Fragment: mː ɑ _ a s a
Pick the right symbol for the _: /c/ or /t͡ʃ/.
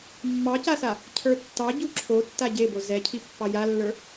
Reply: c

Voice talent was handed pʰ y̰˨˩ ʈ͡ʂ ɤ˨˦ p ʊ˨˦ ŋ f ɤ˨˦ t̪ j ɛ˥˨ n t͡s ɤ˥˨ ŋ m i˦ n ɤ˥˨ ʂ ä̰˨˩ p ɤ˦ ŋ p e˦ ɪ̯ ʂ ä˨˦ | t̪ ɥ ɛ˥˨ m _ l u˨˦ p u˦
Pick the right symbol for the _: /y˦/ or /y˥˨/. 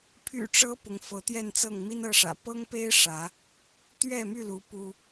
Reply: y˥˨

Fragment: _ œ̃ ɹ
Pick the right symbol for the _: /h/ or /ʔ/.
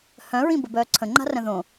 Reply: h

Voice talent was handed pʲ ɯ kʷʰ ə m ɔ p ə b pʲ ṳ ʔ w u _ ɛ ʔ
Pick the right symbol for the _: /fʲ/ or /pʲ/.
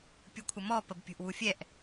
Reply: fʲ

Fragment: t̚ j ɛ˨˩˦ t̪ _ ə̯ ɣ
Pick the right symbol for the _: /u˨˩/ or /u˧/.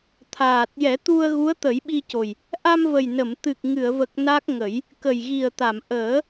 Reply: u˧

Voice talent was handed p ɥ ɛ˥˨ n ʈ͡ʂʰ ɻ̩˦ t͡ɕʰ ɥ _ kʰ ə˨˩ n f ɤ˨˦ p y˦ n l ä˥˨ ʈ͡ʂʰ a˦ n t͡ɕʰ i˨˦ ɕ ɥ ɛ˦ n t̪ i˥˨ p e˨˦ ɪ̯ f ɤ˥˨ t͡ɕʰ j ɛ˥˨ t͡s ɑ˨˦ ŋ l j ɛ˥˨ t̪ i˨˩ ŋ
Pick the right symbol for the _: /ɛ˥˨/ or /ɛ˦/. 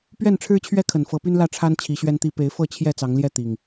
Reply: ɛ˦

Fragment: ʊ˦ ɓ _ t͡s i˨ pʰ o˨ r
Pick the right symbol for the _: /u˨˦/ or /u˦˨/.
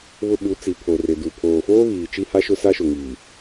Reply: u˨˦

